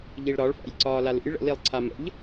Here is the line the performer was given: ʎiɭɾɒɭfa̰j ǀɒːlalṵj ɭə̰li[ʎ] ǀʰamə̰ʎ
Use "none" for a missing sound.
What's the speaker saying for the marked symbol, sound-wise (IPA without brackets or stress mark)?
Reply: lˠ